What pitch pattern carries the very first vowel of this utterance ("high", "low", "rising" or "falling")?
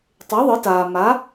rising